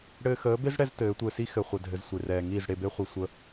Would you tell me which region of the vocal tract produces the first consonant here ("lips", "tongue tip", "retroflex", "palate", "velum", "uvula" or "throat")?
retroflex